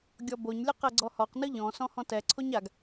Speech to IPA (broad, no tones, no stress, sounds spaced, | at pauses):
ɡʲ ɔ b o ɲ lʲ ɯ q ɛ ɡ͡ǀ ɔ h ɔ q n ɯ ʎ ɔ̃ s ɔ̃ h ɔ̃ t ɛ ǀʰ o ɲ a ɡ